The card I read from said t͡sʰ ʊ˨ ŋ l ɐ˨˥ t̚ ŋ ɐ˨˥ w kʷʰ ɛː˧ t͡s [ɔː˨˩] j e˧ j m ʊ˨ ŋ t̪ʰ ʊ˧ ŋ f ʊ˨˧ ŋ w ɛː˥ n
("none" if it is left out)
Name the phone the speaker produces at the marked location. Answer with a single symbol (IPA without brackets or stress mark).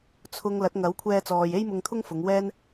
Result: ɔː˨